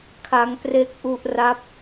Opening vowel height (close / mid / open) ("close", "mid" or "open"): open